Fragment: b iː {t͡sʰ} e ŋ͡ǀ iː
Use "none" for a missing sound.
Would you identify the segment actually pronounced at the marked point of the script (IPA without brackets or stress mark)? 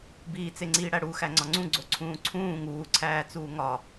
t͡s